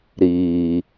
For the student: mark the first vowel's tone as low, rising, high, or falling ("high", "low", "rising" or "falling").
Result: low